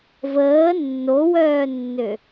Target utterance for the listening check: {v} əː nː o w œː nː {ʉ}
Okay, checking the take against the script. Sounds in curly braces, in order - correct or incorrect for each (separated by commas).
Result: correct, incorrect